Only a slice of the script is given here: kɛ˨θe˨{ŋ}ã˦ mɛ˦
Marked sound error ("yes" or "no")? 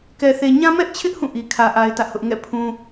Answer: yes